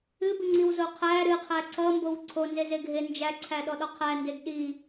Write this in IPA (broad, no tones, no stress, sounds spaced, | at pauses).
ɨ b ɨ ŋ͡ǀ i w z o qʰ æ ɾ ɨ qʰ æ ǀ ʌ m b o w ǀʰ o n z e z e ɡʱ e n d͡ʒ æ ǀʰ æ ɗ ɔ ɗ ɔ qʰ æ n d e ɡ ɗ i